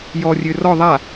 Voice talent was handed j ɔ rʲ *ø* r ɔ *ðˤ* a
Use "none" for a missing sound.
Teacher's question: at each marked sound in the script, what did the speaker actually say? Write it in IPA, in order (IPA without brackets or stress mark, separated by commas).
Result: ø, ðˤ